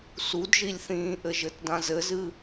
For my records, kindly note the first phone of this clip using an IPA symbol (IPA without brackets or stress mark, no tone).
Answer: s